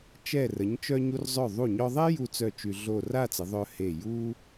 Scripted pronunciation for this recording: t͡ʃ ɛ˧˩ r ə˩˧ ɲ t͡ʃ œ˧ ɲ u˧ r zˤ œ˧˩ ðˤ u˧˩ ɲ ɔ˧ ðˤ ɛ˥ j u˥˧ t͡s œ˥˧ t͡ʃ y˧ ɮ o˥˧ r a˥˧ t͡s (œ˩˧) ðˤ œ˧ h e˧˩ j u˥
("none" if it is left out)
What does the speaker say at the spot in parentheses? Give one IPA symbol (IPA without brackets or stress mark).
ə˩˧